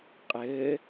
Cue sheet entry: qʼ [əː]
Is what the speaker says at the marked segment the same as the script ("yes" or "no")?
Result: yes